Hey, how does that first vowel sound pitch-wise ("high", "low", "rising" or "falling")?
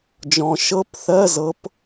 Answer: low